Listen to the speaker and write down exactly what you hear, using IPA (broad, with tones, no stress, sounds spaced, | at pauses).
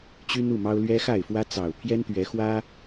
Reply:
t͡ɕ y˦ n u˥˨ m ɑ˦ ʊ̯ l ɥ ɛ˦ x a˥˨ ɪ̯ f w ä˦ t͡s ɑ˨˩ ʊ̯ pʰ j ɛ˦ n t̪ ɥ ɛ˨˦ x w ä˦